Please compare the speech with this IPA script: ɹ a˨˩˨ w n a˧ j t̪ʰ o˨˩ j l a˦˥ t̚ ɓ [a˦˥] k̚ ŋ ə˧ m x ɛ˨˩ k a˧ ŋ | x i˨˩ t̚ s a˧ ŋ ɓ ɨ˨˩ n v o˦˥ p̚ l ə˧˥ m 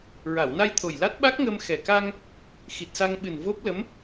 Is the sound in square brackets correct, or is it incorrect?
correct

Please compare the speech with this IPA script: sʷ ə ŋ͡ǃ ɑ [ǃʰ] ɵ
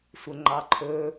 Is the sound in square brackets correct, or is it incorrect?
correct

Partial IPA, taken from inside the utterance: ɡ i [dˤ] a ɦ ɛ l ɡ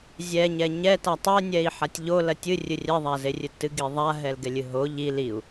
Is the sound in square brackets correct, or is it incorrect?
incorrect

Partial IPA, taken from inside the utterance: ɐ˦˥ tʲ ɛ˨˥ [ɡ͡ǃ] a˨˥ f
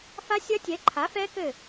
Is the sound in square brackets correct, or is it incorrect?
incorrect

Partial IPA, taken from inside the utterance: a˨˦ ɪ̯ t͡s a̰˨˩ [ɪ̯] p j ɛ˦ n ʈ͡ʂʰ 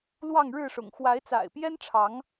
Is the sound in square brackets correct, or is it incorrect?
correct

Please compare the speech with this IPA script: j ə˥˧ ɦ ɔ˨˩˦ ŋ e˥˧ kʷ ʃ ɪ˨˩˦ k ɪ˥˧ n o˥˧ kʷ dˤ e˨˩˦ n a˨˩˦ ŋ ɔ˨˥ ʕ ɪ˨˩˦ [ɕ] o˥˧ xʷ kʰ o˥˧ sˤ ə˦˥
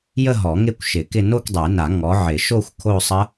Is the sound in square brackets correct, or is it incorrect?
incorrect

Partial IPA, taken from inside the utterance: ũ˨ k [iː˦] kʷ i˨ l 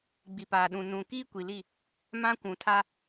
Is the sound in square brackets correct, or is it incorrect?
correct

